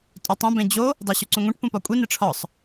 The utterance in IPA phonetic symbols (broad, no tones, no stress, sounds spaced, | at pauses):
tʼ o tˤ õ b ẽ d͡ʑ o | dˤ u ɕ u ǀ ũ ŋʷ ẽ ʈ p ũ p ɒ kʷʼ i n e ʈ͡ʂʰ ɒ sˤ